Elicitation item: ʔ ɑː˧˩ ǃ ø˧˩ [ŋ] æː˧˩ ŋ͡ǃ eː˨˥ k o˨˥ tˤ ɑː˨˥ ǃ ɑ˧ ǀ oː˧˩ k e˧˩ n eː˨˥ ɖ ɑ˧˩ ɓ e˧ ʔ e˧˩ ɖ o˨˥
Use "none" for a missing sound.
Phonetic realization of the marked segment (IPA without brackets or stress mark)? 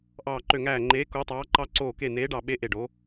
ŋ